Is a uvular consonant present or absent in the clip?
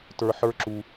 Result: absent